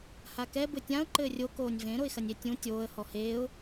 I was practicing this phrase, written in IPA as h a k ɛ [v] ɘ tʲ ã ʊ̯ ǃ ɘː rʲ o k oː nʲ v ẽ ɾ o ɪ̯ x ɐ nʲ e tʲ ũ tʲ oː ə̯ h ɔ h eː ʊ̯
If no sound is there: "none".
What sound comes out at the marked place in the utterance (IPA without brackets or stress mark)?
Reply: b